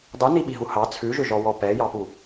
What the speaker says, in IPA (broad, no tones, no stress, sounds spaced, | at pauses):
dˤ u n i ɓ i ɦ u h ɑ t͡sʰ ʉ ʒ ʏ ʒ ɔ w ɔ p ɛ j ɑ p u